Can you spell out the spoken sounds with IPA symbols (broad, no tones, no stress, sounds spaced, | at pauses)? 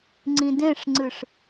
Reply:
ŋ͡ǀ ĩ d ẽ ʂ ŋ͡ǀ ɨ ʂ